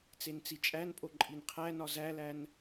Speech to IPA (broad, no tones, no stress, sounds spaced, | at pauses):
t͡s e n t͡s i t͡ʃʼ æ n pʼ o ǃʼ i n qʰ æ n ɒ z æ l æ n